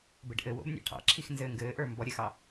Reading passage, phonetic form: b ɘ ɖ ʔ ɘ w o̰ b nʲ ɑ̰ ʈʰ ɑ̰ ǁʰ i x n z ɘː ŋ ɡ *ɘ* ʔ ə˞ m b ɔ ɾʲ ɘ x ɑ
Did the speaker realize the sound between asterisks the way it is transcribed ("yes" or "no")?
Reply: no